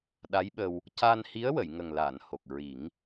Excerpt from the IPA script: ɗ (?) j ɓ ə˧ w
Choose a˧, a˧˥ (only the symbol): a˧˥